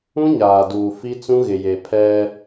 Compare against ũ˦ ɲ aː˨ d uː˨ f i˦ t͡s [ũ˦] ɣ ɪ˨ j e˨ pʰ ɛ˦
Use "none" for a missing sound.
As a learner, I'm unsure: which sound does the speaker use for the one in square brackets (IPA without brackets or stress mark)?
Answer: ũ˦